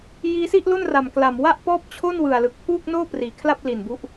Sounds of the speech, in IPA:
j iː˦˥ s i˥˩ ʔ l o˥˩ n r a˨˩ m k l a˨˩ m w a˥˩ ʔ p ɔː˥˩ p̚ t͡ɕʰ o˥˩ n w ɯ˨˩ a̯ l ɯ˨˩ k̚ pʰ uː˥˩ k̚ n oː˥˩ p r iː˨˩ kʰ l a˥˩ p̚ l i˨˩ n b u˦˥ ʔ

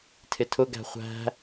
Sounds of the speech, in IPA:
tʰ ɪ tʰ ʊ ɡ æ̤ χʷ æ̤

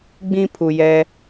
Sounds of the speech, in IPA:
ɡ͡b ĩ˦ pʰ u˨ j ɛ˦

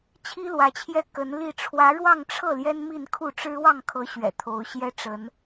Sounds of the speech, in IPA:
t͡ɕʰ i˥ l w ä˧˥ t͡ɕʰ j ɛ˥˩ k ə˧˥ n l i˥˩ ʈ͡ʂʰ w ä˧˥ ɻ w ɑ˥˧ ŋ ʈ͡ʂʰ ɤ˥˩ l j ɛ˥ n m i˥˧ n kʰ u˥˩ ʈ͡ʂ ɻ̩˥ w ɑ˥˩ ŋ kʰ ɤ˧˥ ɕ ɥ ɛ̰˨˩ t̪ʰ o˧˥ ʊ̯ ɕ j ɛ˥ ʈ͡ʂ ə˧˥ n

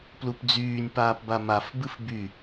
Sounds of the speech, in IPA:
p l u p d͡z yː nʲ p aː p b a m a f b ɨ f b y

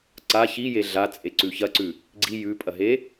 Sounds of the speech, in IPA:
ǀ a ç i j e ɮ a t͡sʼ e ǀ ʉ ç ɐ ǀ ʉ | ɡ͡ǀ i j ʉ pʼ ɐ ɦ e

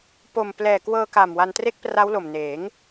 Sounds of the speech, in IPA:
p o˨˩ m p l ɛː˨˩ k w ɤː˧ k a˨˩ m w a˧ n t r e˥˩ k̚ p r a˦˥ w l o˨˩ m n eː˩˦ ŋ

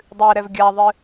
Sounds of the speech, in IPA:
dˤ ɨ ɾ ɛ v ɡʲ a ðˤ ɨ

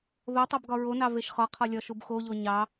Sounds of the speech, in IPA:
ð o tˤ o b ɡ ɒ ɹ o n ɑ v e ʃ χ ɒ qʰ ɒ lʲ ɒ ʃ u b x o ʎ o ɲ ɑ

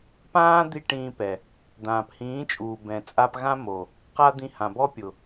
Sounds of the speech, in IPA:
p ãː˦ d̪ i˦ ʈ ĩː˧ p ɛ˨ | d̪ ãː˨ p h ĩː˨˦ t͡ʃʼ uː˨ b ɛ̃˨ t͡sʼ a˧ p ɣ ã˦ m o˨ | q a˦ d̪ ĩ˧ h ã˨ b ɔ˦ pʲ ʊ˨

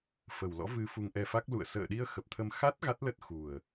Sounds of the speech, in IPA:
f ə˨˩ w l ɔ̰˧˥ v ɨ˧ f u˧ ŋ ʔ ɛ˧ f a˦˥ k̚ l ṵ˧˨ ə̯ s ə̰ː˧˨ ɗ i˧ ə̯ x ə˨˩ p̚ t̪ʰ ə˧ m x a˦˥ t̚ ɣ a˦˥ t̚ l ə˦˥ t̚ x u˨˩ ə̯

